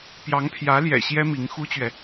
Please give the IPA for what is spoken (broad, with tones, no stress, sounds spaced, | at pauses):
p j ɑ˧˥ ŋ pʰ j ä˧˥ l j ɛ̰˨˩ ɕ j ɛ˥ m i˧˥ ŋ x u˥ t͡ɕ ɥ ɛ˨